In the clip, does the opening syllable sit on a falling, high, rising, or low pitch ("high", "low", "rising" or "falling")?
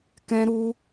high